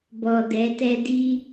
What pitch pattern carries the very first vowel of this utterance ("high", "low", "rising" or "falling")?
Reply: low